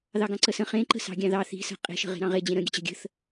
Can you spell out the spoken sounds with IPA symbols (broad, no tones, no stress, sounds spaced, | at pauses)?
ð ɑ ɡ ɑ̃ ǀ ə s ə̃ χ ẽ ǃ ə̤ s ɑ̤ ɡʲ ɑ̃ ð ɑ θ i̤ s ə̤ qʼ e̤ ʃ ə̤ ʁ e̤ ɾ ɑ̃ ʁ e d͡ʑ ẽ ɾ ə̃ ɡʲ ə̤ t͡ɕ ə̤ ɡʲ ə̤ θ